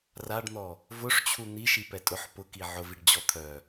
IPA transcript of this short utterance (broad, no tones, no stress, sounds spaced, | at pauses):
r a ɖ n̪ ɔ | v ʊ ʂ t͡ɕʰ u n̪ i ʃ i p ɛ tʼ ʊ ħ p ʊ k i ʕ ʊ v i ɖ d͡ʑ ɔ t̪ʰ œ